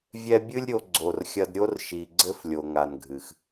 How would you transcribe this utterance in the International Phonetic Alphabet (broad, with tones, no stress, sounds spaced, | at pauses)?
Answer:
vʲ ɛ˧ bʲ ɨ˦ lʲ ɾʲ o˧ ɡ͡ǀ o˨ r xʲ ɐ˧ d ɾʲ o˦ r ʃ i˨ ɡ͡ǀ ɘ˧ f lʲ o˨ ŋ a˨ n ɡʱ ɨ˨ x